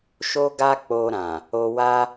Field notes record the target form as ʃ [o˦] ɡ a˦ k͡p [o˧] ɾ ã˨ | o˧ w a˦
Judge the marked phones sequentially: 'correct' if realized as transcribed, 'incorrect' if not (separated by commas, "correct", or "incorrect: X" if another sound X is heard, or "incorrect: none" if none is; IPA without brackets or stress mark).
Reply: correct, correct